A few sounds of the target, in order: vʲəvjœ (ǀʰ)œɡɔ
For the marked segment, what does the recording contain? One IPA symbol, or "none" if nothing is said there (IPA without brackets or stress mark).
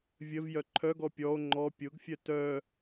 ǃʰ